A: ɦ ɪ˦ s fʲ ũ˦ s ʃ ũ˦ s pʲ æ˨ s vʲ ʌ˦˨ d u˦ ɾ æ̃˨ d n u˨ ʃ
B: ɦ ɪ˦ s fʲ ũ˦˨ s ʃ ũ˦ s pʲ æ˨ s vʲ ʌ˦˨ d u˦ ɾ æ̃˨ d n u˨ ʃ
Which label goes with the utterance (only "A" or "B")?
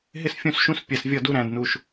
B